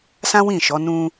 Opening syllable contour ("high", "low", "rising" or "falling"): high